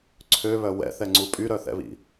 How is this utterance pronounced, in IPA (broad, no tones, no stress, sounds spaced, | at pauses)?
ǀʰ ø β œ w ɛ̰ θ ɛ ŋ͡ǀ u pʼ y ɾ œ θ ɛ̰ β ḭ